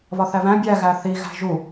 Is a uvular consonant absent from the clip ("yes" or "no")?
yes